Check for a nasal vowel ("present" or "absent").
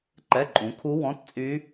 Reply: present